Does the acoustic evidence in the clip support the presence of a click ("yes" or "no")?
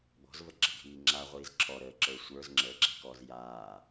yes